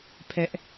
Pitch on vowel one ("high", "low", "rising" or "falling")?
high